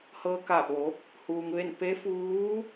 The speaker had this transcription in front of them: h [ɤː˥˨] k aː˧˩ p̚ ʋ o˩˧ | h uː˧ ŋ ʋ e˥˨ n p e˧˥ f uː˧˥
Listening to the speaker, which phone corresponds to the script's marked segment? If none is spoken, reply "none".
ɤː˧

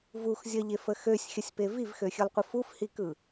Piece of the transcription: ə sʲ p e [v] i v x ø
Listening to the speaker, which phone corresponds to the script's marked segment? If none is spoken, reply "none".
v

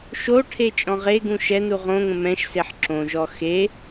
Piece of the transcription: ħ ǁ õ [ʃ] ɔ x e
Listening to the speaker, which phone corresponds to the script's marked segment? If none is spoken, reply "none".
ʒ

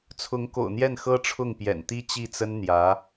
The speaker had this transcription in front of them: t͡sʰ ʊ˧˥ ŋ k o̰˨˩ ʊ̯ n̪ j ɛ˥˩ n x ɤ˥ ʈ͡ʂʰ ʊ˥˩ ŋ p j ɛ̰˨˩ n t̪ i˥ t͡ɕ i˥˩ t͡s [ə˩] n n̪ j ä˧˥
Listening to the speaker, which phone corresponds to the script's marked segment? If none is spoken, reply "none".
ə˥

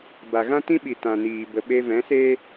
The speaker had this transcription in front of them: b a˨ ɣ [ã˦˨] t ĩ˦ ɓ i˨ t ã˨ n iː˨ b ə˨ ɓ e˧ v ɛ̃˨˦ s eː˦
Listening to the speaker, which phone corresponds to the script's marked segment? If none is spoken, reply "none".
ã˦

